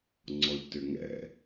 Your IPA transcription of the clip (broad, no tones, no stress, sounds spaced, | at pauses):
ŋ͡ǀ ɔ ʎ t ʏ ŋ ɛ̰